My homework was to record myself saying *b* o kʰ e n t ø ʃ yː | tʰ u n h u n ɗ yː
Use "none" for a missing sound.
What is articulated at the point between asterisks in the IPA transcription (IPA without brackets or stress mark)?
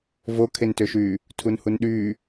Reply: v